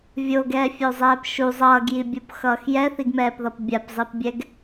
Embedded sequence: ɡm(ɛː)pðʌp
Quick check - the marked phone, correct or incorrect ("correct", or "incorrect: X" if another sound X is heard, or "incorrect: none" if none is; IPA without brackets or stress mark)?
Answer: correct